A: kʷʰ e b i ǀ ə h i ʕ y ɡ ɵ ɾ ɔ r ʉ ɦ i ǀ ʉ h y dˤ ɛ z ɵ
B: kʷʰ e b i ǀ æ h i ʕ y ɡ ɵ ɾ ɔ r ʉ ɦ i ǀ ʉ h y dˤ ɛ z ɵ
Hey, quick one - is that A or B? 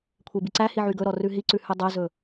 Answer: B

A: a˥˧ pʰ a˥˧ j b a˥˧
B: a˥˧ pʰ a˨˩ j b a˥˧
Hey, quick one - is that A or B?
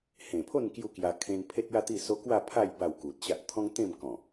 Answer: A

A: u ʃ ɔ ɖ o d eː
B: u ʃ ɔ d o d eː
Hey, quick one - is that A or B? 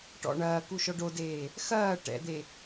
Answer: A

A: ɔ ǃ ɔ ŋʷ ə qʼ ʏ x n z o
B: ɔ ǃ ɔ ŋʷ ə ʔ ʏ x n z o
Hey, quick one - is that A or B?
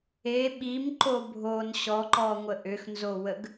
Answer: B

